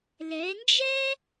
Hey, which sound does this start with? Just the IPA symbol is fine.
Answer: l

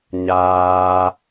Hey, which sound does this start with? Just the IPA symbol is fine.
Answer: ɲ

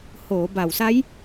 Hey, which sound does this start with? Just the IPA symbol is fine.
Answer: h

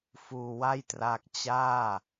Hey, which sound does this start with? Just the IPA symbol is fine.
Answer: f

